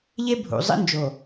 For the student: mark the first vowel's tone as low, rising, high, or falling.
high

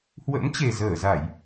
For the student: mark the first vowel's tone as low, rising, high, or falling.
rising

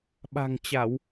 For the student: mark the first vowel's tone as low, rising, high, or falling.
low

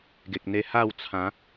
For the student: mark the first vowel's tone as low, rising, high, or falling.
low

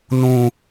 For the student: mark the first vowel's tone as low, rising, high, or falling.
low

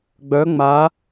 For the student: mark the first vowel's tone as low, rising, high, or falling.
rising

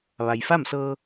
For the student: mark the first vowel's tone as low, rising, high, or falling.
low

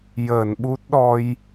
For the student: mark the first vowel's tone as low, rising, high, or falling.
low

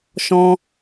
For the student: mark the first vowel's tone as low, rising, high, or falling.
high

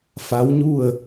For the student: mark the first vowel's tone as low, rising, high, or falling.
rising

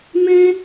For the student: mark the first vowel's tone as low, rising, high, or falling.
high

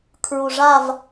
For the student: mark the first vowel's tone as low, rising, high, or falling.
low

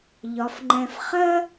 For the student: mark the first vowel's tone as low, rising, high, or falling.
low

